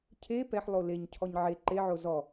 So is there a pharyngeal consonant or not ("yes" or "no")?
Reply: yes